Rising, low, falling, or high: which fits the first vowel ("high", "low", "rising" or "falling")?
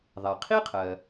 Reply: low